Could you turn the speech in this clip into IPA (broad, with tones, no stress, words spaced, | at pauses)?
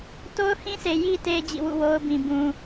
to˦ʊ̯hĩ˦sʰe˨ ji˨te˨ d͡ʑḭ˦˨wṵ˦˨wo˦ʊ̯bĩ˨ bũ˨